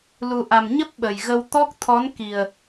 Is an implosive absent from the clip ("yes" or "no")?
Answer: no